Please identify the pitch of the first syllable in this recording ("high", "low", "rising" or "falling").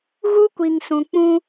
high